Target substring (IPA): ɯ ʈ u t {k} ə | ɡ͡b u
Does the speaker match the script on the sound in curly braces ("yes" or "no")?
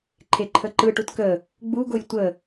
yes